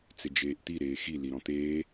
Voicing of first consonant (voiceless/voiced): voiceless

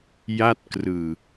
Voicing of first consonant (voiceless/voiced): voiced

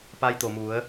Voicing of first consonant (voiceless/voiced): voiceless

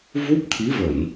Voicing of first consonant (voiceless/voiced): voiced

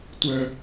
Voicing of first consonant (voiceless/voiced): voiceless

